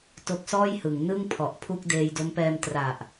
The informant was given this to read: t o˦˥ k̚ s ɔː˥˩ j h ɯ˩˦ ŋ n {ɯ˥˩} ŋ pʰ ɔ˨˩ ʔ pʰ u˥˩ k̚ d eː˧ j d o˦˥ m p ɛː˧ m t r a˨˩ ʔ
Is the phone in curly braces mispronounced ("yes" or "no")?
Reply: no